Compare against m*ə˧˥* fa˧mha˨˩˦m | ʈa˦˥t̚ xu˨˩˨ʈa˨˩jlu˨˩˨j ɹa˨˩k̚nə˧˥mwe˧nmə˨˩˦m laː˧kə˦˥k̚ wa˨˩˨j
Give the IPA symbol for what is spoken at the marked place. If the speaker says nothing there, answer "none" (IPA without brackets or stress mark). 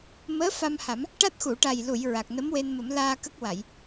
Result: əː˧˥